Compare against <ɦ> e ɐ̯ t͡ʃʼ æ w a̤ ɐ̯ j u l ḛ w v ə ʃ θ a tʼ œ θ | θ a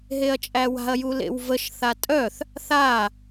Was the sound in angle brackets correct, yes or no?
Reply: yes